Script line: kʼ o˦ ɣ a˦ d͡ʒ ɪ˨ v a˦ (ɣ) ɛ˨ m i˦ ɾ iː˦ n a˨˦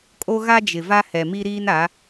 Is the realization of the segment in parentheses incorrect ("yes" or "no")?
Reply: yes